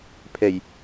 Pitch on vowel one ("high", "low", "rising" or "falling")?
low